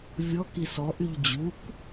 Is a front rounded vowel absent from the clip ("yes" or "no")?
no